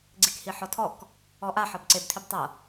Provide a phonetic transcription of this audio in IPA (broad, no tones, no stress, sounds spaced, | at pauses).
ɡ͡ǀ i k h i ħ ɔ tʰ ɔ k | ɔ ʔ a ħ ɤ b ǀ e b tʰ i b tˤ ɤ